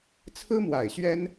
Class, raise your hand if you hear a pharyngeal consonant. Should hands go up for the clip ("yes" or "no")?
no